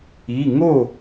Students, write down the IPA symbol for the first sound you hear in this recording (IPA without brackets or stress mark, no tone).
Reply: i